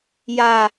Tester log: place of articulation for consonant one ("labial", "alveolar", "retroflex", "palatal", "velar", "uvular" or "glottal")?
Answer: palatal